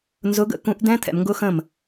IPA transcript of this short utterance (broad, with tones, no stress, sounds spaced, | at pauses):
n z ʊ˨˦ ɡ ə̰˥˩ k ũ˨˦ ʔ d ɛ̃˦˥ t̪ʰ ɛ̰˨ m ŋ ɡ ʊ˦˥ x ə̃˥˩ m